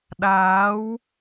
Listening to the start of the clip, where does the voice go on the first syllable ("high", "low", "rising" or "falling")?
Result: rising